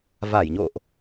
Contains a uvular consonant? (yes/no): no